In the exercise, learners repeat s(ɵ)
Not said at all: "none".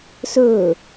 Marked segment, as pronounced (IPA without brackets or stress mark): ɵ